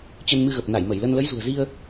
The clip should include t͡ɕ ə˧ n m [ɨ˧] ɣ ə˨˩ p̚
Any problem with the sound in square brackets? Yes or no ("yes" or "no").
no